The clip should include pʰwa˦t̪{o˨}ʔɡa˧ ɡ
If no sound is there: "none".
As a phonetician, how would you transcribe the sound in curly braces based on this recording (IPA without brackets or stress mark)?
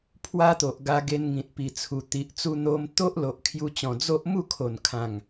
o˨